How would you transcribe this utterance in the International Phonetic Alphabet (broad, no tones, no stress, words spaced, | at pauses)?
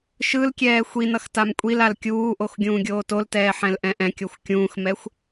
ʃɯlkʲɛː xʷinʌx tamkʷʼilal kʲuːʔox ɡʲũːɡʲoːtoltɛː ħɛ̃lʔɛ̃ʔɛ̃kʲoxʷ kʲũːxmɛxʷ